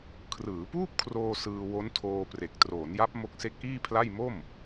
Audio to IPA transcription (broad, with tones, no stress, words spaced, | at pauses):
kʰrɯː˩˦puː˥˩p̚kʰroː˧ sɯː˧wo˦˥ntʰoː˧ pre˨˩k̚ troː˩˦nja˦˥p̚ mo˦˥k̚se˦˥k̚ʔiː˥˩pʰla˥˩j mo˥˩m